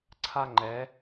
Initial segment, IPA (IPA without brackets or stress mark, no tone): ǀʰ